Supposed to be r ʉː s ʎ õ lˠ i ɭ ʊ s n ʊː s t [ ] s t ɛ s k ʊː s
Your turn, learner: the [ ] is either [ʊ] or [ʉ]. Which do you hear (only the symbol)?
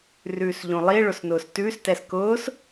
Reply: ʉ